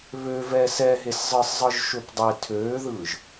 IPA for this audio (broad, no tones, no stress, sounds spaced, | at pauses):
β ø v ɛː s ɛ ɦ e s zˤ ɯ sˤ zˤ ɯ ʒ ʃ ø p dˤ e tʰ øː ð ɯː ʒ